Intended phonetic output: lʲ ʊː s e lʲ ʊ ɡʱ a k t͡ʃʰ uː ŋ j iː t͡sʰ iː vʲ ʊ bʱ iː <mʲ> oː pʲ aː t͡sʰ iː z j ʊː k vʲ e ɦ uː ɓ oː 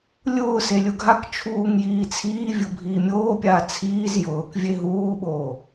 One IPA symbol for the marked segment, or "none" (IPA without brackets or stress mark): mʲ